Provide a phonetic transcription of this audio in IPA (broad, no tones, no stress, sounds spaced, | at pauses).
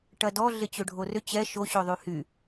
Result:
ʈ ɐ d ɔ ɮ ɪ t͡ɕ ø ɖʱ o r ʏ t͡ɕ ɛ ʃ o ɕ ø ðˤ y h y